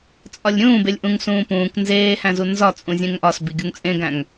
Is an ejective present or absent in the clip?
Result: present